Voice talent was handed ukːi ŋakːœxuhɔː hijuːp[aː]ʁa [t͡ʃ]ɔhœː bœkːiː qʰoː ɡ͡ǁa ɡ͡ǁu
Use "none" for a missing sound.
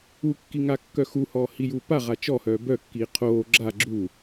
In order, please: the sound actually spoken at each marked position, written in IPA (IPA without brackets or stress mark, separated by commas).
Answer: a, t͡ʃ